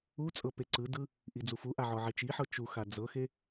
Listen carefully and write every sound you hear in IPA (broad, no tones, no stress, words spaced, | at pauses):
ut͡sʼɤ peǀɯdɯ | ʔid͡zufuʔa ʕɔʕet͡ʃiħɤ t͡ʃuxa d͡zɤxe